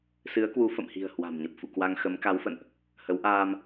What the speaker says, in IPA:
s ɨ˨˦ ə̯ k w u˨˦ f ə̰˧˨ m h i̤˨˩ ə̯ h w a̤˨˩ m ɲ ə˨˩ p̚ f ṵ˧˨ k w a˧ ŋ x ə˨˦ m k a˨˦ w f ə̰˧˨ n ʔ | h ə˨˦ w ʔ aː˧ m

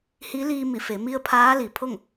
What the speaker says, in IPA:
h i˧˥ l iː˧ m i˧˩ f e˩˧ m i˧ ə̯ pʰ aː˧˥ l i˩ pʰ o˥˨ ŋ

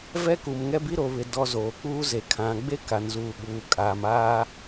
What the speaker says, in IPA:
v ɛ˦ k u˨ m ŋ ɛ˦ b i˦ ɾ o˨ β ɪ˨ d ɔ˨ z oː˨ k͡p uː˦ z e˨ kʰ ã˨ ɡ͡b e˦ k a˨ n z uː˨ ɓ uː˨ kʼ aː˨ m aː˦

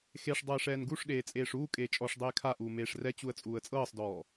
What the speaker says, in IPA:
x e ʂ dˤ ɤː ʂ ɛː n ɡ u ʂ ɗ eː t͡sʼ eː ʂ uː kʼ eː t͡ʃʼ ɔ ʂ dˤ eː kʰ a ʔ uː m eː ʂ r ɛ t͡ɕ u ə̯ t͡sʼ uː ə̯ t͡sʼ ɤː sˤ d ɔː

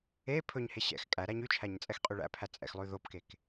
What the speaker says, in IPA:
e pʰ ɵ ɲ h e ɕ ɛ̰ x kʼ æ ɾ æ ɲ y t͡ʃʰ æ ɲ t͡sʼ ɛ x qʼ y ɭ æ̰ pʰ æ t͡sʼ ɛ̰ x lˠ ʉ ð o p k e k

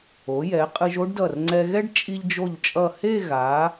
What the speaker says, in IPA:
o˩˧ j ɛ˩˧ qʼ ɯ˧ ʒ o˥ ɖ d ʌ˧˩ r ŋ͡ǀ ɛ˧ ɣ ɛ˥ ɖ t͡ʃʼ i˧ ʎ d͡ʒ o˧˩ ʎ t͡ʃʼ ʌ˧˩ h e˥˧ ɣ a˩˧

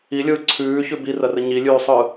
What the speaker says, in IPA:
i lʲ ɯː ǀʰ ʉː ç ʉ b i r ɐ r ə ɲ i lʲ ʉː sˤ ɯː

